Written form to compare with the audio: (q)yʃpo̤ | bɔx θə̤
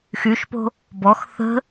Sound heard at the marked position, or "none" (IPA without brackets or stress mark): x